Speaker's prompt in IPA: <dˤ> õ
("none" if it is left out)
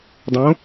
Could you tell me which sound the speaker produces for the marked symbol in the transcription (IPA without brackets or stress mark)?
dˤ